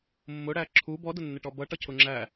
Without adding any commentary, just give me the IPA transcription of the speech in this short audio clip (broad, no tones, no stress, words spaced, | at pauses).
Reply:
mːʊɽæ ǁʰu bɔdʊnːɪʈɔ bʌʈʌcʰʊ ŋ͡ǁæ